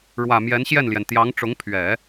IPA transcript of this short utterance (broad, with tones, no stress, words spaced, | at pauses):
ɻwä˨˩ mjɛ˧˥nɕjɛ˥˩nljɛ˩n t̪jɑ˧˥ŋʈ͡ʂʊ˧˥ŋpʰɥɛ˨˩˦